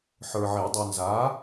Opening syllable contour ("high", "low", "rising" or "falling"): low